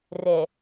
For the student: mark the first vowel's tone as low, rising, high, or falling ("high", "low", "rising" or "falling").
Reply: low